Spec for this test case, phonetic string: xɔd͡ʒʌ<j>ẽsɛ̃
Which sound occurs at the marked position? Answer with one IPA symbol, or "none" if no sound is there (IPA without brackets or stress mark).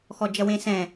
w